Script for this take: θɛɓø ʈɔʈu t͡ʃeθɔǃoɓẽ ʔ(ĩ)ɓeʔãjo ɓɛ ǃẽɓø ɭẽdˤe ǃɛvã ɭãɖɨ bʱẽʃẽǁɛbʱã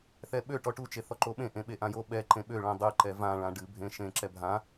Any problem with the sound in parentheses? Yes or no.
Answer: yes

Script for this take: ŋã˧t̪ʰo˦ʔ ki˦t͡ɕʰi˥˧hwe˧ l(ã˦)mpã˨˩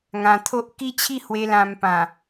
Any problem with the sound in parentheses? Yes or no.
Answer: yes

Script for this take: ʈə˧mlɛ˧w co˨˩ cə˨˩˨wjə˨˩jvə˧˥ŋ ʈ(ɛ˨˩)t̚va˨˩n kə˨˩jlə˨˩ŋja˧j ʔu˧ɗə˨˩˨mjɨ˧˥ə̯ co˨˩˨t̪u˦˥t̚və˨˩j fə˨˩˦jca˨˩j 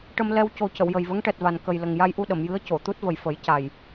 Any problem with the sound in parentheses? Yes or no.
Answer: no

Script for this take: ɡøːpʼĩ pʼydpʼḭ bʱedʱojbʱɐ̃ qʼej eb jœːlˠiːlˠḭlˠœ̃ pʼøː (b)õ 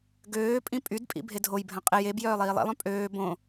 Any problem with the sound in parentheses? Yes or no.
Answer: no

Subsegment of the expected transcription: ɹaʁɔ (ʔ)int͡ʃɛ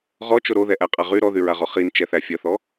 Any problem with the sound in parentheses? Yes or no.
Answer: yes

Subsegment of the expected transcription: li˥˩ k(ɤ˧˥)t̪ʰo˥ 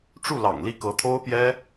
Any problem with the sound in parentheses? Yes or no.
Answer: no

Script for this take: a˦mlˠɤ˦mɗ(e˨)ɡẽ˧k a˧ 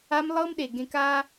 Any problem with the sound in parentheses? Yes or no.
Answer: no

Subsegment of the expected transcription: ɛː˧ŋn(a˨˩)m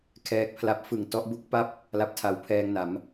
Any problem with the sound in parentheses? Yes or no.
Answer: yes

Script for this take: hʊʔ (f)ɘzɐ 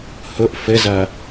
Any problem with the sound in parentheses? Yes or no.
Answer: no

